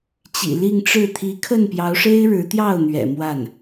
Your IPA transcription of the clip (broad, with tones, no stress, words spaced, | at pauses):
t͡ɕḭ˨˩li˥˧ŋʈ͡ʂɻ̩˥˩ t̪ʰi˧˥kʰə˥˩npjɑ˧˥ʊ̯ʂe˥ɪ̯ ɻɻ̩˧˥t̪jɑ˥˩ʊ̯n̪ɥɛ̰˨˩ mwa˥˩n